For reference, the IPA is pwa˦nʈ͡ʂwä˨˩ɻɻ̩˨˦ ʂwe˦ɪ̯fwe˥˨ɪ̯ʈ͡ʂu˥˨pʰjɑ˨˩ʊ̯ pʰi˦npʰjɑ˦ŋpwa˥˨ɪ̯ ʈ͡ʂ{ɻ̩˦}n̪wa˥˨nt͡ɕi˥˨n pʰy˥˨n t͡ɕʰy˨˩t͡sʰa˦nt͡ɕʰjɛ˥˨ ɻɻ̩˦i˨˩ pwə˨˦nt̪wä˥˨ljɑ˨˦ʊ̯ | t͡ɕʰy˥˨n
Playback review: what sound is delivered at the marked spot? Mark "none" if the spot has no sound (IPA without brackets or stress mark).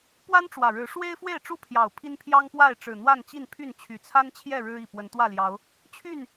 ɻ̩˨˩